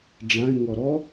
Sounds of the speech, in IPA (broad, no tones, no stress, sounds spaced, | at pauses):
ɖ͡ʐ ã ɪ̯ ŋ ɔ ɾ ɔ